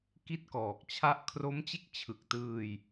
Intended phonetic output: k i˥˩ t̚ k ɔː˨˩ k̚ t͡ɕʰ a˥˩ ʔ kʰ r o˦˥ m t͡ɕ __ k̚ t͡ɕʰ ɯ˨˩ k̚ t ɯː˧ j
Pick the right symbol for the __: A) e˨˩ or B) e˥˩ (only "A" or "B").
B